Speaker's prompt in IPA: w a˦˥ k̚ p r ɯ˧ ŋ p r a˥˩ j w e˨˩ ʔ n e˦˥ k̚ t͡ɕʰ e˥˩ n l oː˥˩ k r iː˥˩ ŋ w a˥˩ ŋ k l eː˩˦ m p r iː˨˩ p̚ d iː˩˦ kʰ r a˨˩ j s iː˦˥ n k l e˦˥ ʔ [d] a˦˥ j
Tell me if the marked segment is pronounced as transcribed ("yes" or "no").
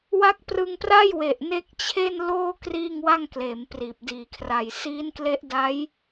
yes